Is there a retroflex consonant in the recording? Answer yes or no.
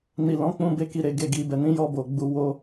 no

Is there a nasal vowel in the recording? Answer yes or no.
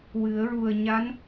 no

